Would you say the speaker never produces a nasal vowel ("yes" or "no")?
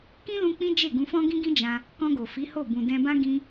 no